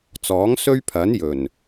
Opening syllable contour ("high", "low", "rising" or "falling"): rising